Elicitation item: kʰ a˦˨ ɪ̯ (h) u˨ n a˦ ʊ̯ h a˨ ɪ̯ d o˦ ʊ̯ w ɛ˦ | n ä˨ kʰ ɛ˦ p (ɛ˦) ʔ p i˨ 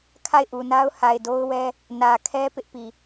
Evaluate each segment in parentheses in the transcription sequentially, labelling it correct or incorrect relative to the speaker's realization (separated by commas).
incorrect, incorrect